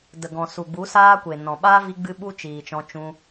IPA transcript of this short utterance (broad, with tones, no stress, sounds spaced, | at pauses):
d ə˨ ɡ ɔ̃˨ s u˨ ɡ͡b u˨˦ s aː˧ kʷ e˨ n ɔ̃˨ ɓ aː˦ v i˧ ɡ͡b ɨ˧ ɓ u˦ t͡ʃ iː˨ t͡ʃ ɔ̃˧ t͡ʃ ũ˧